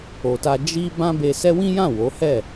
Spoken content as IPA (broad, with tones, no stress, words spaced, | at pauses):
o˨ta˧ d͡ʒi˦ bã˦be˧sɛ˦ wĩ˦jã˦˨ wo˨˦hɛ˦˨